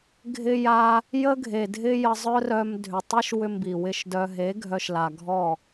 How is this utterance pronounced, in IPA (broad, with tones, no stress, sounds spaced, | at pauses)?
ɡʱ ɪ˧ j a˧ | j ə˦ ɡʱ e˨ dʱ ɪ˦ j ə˧ zˤ œ˦ r œ˧ m dʱ ʏ˨ tˤ i˦ ʃ w ʏ˧ m b i˨ w ɪ˦˨ ʃ d œ˧ ɦ e˨˦ ɡʱ œ˧ ʃ l a˨ ɡʱ ɔ˦˨